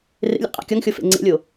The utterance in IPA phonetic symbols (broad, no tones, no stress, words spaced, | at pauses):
rḛlʲæ̰qʼæ̰ kʲɒŋxʲofḛ ŋ͡ǀḛlʲo